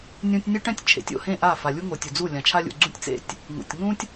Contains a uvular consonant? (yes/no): no